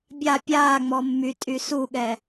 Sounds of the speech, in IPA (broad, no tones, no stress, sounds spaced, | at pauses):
bʲ a pʲ aː ŋ͡m ɔ mː y tʼ y s u ɠ ɛ